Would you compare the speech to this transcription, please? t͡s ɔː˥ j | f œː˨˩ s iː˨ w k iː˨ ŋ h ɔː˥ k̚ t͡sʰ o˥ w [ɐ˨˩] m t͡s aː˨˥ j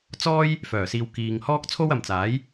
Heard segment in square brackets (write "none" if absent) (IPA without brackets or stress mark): ɐ˨